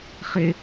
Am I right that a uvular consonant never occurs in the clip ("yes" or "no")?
no